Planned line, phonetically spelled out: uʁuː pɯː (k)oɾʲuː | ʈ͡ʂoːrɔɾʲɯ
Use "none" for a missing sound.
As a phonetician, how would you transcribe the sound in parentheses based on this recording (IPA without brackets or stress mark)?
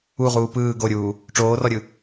ɡ